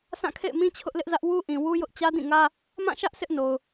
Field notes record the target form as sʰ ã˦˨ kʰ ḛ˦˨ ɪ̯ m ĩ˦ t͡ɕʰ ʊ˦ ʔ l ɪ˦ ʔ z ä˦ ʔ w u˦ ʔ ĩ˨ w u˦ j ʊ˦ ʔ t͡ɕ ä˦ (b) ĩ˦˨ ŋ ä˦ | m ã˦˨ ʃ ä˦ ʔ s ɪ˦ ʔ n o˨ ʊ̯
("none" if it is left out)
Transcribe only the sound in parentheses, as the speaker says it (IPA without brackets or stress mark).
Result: d